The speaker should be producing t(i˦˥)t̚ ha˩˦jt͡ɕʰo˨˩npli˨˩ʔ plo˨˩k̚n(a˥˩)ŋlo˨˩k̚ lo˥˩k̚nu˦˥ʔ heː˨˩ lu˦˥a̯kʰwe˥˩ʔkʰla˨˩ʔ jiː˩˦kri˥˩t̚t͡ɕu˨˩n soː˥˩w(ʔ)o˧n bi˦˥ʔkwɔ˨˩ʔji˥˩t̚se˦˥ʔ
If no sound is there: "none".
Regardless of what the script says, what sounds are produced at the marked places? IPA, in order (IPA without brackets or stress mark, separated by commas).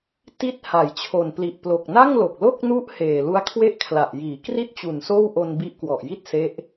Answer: i˦˥, a˥˩, ʔ